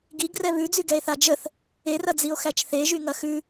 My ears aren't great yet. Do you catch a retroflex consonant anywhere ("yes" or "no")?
no